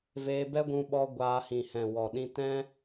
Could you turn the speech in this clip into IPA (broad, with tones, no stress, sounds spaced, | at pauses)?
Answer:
v eː˧ b ɛ˦ ɡʷ ũ˧ ɓ ɔ˧ ɡʷ aː˧ h ĩ˨ h ɛ̃˨ w ɔ˨ ɗ ĩ˧ t ɛ̃˧